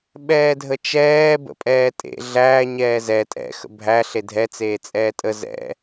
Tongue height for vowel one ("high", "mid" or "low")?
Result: mid